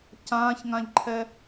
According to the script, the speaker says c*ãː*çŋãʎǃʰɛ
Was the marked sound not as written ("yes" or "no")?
no